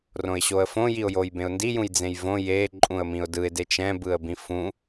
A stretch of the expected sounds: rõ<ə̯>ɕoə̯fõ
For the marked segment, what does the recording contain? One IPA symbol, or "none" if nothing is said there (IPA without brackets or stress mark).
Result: ɪ̯